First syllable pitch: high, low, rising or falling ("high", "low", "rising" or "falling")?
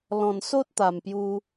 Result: low